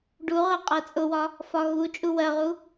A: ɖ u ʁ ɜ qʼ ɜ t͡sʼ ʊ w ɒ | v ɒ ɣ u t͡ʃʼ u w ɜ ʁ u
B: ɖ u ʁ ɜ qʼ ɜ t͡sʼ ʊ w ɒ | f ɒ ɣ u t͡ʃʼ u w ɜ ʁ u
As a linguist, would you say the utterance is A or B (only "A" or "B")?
B